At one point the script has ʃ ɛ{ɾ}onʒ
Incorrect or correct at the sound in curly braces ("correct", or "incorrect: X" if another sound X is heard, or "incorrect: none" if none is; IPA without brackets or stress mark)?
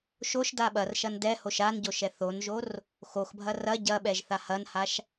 incorrect: θ